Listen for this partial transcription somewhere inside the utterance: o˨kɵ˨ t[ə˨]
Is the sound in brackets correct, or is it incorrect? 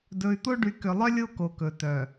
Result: incorrect